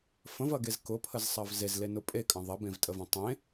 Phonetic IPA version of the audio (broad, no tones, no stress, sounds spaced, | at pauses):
f ə̃ v ɐ ɡ e z k ʊ pʰ ə z sˤ ɐ v z e z l e n ʊ pʼ e kʼ ɐ̃ ðˤ ɐ b ẽ v tʼ ə v ɐ̃ tˤ ẽ